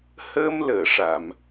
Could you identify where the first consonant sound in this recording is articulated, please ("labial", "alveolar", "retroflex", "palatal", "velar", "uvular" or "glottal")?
glottal